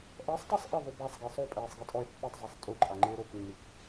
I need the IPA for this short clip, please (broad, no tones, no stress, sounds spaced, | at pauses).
ʔ ɛ sˤ tˤ i sˤ ʔ ɪ ðˤ u b a sˤ ɡ e sˤ o pʼ ɛː sˤ ɡ i tʼ ɔ e̯ pː e tˤ zˤ ɛ sˤ tʼ u ǃʼ a ŋ͡ǃ ɪː ɾ o k nː i k